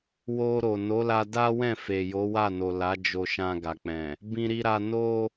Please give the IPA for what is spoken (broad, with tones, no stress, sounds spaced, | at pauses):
w o˧ ɾ o˨ n o˨˦ l a˧ d a˦ w ɛ̃˦˨ f e˨ j o˨˦ w a˦˨ n o˨ l a˨˦ d͡ʒ o˧ ʃ ã˧ ɡ a˨ k͡p ɛ̃˨ | b ĩ˦ ɾ i˦ ɾ a˦ n o˦